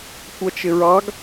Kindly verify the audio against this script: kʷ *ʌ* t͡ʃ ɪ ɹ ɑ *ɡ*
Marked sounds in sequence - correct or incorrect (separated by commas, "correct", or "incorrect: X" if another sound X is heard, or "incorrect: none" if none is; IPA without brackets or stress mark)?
correct, correct